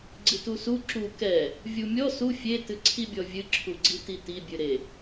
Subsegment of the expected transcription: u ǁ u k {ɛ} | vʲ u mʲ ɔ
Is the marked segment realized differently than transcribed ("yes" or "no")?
no